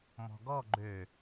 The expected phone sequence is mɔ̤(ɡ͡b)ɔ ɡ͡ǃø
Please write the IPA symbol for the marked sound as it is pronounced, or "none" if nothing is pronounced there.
ɡ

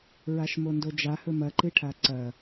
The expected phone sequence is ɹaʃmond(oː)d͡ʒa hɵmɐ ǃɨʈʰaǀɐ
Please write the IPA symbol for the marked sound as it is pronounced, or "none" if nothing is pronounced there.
o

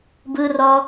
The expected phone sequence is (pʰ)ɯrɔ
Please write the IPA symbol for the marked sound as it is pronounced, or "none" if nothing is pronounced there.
b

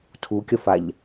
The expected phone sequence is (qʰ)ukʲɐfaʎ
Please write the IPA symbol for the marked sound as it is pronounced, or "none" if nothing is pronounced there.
tʰ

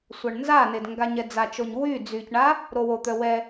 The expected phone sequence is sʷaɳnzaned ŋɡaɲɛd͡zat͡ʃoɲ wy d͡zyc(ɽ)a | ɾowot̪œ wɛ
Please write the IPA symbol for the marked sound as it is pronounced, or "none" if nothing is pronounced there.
ɳ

